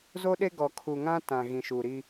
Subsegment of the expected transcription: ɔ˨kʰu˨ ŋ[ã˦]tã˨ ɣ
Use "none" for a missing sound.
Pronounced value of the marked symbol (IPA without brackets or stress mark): ã˦